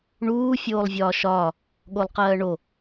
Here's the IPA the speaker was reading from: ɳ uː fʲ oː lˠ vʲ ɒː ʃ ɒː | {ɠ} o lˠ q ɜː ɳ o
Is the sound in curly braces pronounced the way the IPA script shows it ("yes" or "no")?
yes